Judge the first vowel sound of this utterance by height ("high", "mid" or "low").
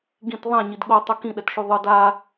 high